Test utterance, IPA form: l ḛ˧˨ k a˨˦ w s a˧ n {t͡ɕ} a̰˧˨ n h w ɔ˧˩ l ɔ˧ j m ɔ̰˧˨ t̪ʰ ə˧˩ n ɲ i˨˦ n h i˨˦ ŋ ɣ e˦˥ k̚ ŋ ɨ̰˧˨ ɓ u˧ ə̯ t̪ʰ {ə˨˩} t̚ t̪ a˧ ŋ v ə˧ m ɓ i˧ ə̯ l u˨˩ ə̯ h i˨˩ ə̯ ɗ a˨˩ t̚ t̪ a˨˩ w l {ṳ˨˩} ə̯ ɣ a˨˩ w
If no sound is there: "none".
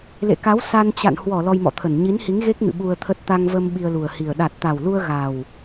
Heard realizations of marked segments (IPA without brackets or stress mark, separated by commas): t͡ɕ, ə˦˥, u˧